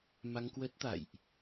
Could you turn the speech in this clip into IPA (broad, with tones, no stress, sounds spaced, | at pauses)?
m a˧ ŋ k w ə˦˥ t̚ t̪ a̰˧˨ j ʔ